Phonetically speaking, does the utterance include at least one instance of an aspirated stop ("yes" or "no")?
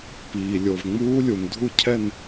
yes